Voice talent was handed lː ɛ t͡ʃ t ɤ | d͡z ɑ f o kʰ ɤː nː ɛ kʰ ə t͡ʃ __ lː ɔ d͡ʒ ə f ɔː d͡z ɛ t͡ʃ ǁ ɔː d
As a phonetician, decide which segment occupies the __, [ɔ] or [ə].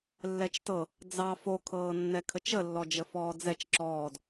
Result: ə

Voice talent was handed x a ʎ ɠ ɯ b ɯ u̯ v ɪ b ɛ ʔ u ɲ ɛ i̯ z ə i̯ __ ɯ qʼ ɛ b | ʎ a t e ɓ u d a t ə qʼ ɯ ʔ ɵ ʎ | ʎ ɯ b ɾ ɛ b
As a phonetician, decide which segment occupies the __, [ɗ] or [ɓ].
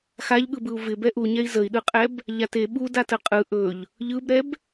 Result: ɗ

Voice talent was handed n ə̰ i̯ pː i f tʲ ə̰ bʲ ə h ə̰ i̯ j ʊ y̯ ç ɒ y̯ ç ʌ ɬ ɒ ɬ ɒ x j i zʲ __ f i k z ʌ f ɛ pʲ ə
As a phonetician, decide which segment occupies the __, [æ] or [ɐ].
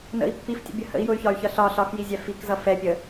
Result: æ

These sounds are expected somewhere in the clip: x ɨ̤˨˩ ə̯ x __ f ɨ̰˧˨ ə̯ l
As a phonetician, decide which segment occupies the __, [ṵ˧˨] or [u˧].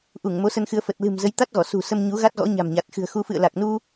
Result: u˧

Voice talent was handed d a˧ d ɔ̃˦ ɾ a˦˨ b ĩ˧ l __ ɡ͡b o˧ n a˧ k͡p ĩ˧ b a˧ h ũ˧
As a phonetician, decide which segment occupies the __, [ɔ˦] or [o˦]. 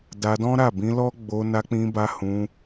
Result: ɔ˦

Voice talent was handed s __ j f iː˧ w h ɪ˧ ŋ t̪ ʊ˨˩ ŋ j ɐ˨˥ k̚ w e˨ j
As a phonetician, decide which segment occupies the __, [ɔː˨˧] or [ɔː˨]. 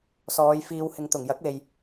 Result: ɔː˨˧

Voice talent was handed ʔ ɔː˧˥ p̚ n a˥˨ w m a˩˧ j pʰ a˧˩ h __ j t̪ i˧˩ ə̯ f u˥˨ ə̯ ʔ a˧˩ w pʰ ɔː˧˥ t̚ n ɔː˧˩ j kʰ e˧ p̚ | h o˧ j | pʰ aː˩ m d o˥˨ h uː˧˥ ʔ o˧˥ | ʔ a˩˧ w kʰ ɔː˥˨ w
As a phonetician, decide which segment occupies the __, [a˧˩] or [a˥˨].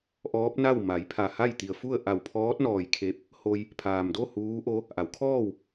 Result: a˥˨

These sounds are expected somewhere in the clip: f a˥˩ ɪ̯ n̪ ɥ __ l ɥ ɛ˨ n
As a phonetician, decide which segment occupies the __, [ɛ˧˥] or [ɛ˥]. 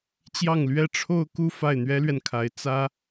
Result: ɛ˥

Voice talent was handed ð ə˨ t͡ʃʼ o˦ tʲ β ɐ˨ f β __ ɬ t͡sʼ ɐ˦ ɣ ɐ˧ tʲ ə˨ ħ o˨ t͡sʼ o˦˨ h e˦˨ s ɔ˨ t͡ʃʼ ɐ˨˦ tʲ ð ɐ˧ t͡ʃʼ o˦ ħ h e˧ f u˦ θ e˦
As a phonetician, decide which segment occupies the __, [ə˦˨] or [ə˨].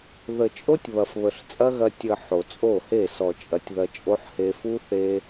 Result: ə˨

